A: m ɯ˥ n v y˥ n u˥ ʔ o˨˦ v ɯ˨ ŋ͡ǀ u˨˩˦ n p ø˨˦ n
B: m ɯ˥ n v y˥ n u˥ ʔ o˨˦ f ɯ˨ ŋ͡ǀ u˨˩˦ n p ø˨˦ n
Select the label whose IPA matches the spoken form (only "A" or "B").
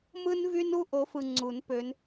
B